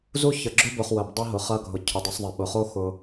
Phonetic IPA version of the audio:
zu˦çə˨ ɡ͡ǁʊ˦bʊ˨χ wə˨bdˤɐ˦ ɦʊ˨χɐ˧ɡʱʊ˨ cʰʊ˨dˤə˧sˤðˤɐ˨ ɓʊ˨χo˦ xʊ˧

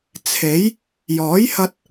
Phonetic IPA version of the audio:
t͡sʰe˨˥j | jɔː˨˥jhɐ˧t̚

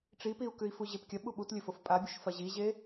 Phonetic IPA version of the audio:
ʈ͡ʂipiu̯kʉi̯ fuʑepkʲɐ ɓuɓutlʲɵfof pʼabʲoʃfɐ ʑiʑe

